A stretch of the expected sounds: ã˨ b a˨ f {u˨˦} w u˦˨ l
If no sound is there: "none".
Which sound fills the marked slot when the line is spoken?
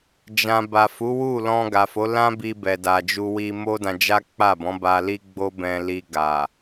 u˨˦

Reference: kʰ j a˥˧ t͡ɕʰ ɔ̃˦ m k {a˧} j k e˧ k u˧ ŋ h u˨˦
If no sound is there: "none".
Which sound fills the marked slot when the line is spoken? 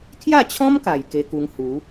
a˨˩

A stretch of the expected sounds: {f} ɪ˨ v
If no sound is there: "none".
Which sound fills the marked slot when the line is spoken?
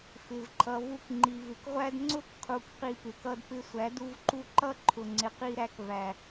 f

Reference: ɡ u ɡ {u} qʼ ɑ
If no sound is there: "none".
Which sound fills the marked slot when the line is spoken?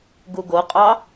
o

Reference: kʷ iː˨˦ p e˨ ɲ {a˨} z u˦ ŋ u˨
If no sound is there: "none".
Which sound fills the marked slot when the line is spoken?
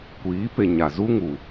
a˨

